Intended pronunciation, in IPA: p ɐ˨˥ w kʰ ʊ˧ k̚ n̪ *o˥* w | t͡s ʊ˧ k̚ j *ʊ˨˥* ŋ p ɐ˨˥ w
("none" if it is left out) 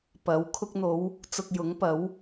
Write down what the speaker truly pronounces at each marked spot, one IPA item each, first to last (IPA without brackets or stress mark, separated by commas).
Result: o˨˧, ʊ˨˥